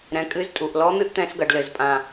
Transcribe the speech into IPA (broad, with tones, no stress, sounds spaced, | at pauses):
ɾ ɛ̃˩˧ kʼ ɨ˧˥ z tʼ u˩ ʔ l ɔ˧˥ n̪ ɨ˥ ʔ t̪ ɛ̃˧˥ s ɡ ɐ˩˧ ɖ l ɘ˩ z pʼ ã˩